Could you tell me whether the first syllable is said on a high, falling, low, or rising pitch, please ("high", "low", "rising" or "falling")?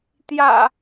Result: low